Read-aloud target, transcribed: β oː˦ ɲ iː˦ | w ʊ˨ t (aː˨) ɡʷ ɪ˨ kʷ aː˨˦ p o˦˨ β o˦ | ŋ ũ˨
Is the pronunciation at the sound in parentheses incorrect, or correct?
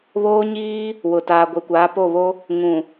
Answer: correct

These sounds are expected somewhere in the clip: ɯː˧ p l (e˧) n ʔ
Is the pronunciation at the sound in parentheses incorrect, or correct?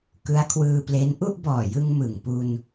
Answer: incorrect: e˦˥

